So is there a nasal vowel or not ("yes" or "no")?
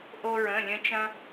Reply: yes